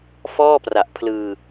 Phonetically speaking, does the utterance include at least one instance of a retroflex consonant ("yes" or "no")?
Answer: no